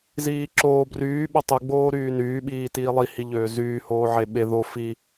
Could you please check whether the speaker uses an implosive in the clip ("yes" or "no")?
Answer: yes